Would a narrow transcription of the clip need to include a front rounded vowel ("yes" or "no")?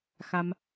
no